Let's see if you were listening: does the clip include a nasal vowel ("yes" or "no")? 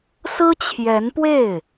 no